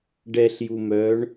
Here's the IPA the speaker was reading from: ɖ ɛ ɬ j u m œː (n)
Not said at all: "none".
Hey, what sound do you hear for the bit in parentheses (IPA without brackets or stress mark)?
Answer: ɳ